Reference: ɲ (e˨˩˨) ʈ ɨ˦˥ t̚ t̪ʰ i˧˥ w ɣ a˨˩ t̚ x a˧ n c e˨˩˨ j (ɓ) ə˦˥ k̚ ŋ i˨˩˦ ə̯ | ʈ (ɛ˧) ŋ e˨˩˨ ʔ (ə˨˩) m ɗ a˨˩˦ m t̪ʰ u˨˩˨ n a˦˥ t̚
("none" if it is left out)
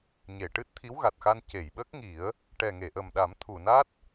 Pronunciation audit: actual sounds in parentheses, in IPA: e˨˩˨, ɓ, ɛ˨˩, ə˨˩

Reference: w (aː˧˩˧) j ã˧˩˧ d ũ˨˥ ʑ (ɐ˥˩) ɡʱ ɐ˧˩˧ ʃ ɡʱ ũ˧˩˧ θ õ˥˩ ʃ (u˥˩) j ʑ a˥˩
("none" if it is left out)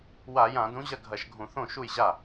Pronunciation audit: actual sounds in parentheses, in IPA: a˧˩˧, ɐ˥˩, u˥˩

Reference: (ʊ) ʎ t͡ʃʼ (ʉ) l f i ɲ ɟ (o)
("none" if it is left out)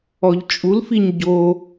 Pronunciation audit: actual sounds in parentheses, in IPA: ɔ, u, o

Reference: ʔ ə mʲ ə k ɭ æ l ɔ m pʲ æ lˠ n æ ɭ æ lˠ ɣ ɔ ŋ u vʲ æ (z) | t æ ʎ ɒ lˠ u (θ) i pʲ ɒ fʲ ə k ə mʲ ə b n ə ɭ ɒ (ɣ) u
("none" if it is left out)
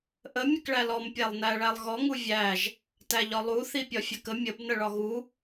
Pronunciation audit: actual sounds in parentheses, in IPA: ʒ, θ, ɣ

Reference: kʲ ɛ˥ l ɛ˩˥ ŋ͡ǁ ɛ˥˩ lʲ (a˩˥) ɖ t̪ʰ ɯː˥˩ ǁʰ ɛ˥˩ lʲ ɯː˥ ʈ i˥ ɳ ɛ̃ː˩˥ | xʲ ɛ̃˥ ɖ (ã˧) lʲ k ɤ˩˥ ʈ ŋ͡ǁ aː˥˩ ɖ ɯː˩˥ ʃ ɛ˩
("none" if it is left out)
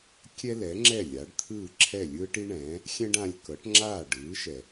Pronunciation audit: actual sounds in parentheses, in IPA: a˩˥, ã˧

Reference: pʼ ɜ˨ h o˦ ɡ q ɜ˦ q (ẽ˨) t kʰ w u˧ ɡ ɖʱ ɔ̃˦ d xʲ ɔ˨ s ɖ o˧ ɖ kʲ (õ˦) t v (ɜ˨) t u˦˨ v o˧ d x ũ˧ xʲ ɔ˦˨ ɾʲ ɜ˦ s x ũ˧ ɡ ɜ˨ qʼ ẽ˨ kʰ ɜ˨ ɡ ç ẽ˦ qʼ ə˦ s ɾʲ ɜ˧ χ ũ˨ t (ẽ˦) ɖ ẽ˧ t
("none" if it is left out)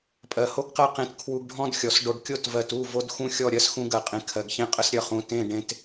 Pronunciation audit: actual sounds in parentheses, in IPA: ẽ˧, o˦, ɜ˨, ẽ˦˨

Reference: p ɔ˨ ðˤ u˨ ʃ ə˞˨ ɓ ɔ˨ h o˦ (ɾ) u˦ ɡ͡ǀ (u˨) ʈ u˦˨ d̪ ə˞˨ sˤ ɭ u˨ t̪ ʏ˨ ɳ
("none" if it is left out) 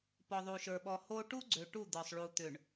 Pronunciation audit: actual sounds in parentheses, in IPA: ʈ, ø˨

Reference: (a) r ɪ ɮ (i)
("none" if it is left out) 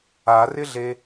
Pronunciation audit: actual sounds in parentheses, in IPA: a, e

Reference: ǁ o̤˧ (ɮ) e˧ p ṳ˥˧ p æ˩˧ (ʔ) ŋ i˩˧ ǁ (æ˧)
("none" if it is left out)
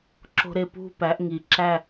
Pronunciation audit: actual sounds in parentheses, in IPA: ɾ, ʔ, æ˥˧

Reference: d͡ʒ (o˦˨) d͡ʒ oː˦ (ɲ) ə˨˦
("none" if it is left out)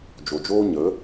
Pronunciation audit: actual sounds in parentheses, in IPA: o˨, ɲ

